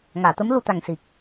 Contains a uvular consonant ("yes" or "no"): no